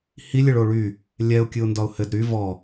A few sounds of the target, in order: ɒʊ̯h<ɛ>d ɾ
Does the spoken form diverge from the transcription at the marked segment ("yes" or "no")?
yes